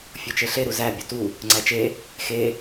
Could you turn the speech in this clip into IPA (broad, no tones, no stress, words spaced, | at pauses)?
fʲot͡ʃeɬe ɾuzæ bʲotu | ŋ͡ǀæt͡ʃe | xe